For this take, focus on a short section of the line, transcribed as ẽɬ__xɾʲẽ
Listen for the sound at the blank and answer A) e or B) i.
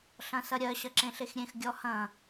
A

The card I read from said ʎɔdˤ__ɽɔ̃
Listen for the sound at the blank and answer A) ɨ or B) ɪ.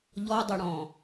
B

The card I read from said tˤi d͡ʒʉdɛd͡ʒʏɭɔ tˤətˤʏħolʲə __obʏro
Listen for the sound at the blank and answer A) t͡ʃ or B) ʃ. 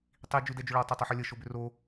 B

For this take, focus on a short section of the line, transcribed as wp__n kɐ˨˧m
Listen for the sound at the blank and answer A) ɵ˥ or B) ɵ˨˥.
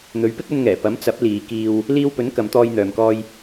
B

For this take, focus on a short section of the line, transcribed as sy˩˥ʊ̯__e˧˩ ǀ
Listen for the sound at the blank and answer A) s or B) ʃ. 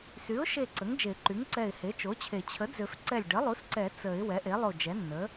B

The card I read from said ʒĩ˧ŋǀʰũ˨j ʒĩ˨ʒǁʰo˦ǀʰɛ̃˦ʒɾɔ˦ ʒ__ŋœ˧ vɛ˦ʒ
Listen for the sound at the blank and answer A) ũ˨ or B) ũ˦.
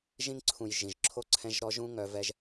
B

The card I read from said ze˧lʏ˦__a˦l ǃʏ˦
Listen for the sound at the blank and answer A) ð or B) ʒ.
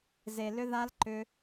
A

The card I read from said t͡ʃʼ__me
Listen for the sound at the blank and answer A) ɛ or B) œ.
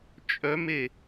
B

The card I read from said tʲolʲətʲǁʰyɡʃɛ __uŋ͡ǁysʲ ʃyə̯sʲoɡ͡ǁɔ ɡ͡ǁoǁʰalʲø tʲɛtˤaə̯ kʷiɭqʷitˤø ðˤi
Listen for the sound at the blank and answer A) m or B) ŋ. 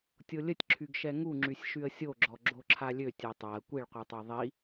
B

